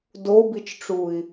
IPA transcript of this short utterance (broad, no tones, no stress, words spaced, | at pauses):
dobit͡ʃʈ͡ʂui̯